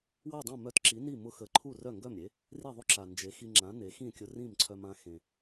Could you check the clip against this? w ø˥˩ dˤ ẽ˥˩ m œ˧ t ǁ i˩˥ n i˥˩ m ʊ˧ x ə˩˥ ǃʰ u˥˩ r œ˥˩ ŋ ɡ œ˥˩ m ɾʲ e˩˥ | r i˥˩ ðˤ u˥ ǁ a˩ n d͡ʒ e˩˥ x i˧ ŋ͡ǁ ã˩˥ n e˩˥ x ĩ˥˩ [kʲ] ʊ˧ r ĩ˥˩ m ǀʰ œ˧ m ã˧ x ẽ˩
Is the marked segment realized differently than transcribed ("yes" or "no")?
no